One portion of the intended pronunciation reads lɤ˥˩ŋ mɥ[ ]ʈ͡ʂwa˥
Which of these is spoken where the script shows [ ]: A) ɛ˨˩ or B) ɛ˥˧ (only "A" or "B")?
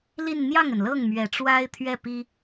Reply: A